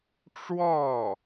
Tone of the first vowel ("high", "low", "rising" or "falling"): falling